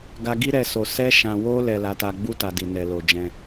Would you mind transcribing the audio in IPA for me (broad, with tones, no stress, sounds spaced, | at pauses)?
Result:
ɡ a˧ ɡ i˦ ɾ ɛ˧ s o˨ s ɛ˧ ʃ ã˨ w o˧ l ɛ˨ l a˨˦ t a˧ ɡ͡b u˦ t a˧ d i˨ n ɛ˨ l o˨ d͡ʒ ɛ̃˧